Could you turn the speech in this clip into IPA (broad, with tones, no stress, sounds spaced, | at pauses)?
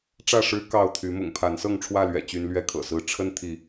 ʈ͡ʂ ä˥˨ ʂ ɻ̩˦ k ɑ˥˨ ʊ̯ t̪ʰ y˨˦ m ʊ̰˨˩ ŋ pʰ a˨˦ n s ɤ˥˨ ŋ ʈ͡ʂʰ w ä˥˨ l ɥ ɛ̰˨˩ t͡ɕ y˦ n l ɥ ɛ˥˨ kʰ ɤ̰˨˩ s ɹ̩˥˨ ʈ͡ʂʰ ə˦ n t̪ʰ i˨˦